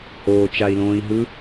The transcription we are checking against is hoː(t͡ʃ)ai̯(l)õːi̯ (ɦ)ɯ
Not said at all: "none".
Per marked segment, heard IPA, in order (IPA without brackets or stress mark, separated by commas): t͡ʃ, l, ɦ